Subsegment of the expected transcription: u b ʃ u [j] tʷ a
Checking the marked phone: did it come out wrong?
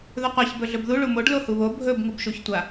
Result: yes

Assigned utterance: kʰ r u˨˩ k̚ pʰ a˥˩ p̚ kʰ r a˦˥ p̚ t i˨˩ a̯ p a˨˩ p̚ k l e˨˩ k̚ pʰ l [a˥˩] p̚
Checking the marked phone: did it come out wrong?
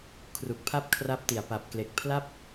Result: no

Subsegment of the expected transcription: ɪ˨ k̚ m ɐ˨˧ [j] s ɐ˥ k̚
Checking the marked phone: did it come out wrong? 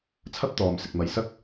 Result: no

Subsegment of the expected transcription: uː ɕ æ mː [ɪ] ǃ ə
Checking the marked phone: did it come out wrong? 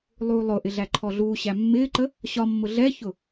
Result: yes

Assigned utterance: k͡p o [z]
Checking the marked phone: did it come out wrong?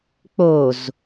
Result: no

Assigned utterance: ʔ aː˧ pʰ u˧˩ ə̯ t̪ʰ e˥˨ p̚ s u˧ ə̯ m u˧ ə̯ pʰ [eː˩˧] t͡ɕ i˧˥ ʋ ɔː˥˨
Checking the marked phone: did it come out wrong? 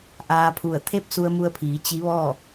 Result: yes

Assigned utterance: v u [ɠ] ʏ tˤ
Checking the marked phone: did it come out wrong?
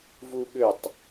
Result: no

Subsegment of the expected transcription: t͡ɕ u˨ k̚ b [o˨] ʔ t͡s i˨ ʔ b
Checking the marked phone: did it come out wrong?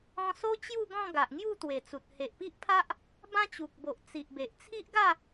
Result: no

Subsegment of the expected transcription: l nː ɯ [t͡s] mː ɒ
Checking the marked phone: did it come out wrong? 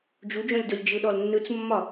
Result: no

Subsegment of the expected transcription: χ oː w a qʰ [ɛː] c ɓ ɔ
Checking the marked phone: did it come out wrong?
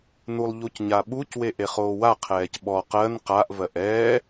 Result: no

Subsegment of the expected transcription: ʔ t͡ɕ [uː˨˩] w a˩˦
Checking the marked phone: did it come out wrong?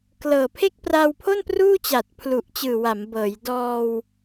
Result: yes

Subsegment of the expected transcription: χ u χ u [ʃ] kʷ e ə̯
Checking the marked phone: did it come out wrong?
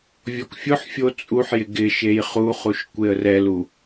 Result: no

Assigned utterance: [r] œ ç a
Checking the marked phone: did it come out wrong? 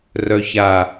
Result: no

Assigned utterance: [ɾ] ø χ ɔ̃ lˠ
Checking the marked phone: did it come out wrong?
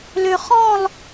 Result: yes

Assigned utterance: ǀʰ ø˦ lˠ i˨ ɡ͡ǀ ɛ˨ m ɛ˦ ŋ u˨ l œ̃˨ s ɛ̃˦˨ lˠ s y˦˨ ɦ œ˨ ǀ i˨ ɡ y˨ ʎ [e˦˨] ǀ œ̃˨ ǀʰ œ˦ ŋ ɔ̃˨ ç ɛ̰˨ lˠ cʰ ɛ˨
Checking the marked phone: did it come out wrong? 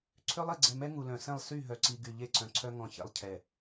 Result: no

